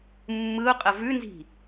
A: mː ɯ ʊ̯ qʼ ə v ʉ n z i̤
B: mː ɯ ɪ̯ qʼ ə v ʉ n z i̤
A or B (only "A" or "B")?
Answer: A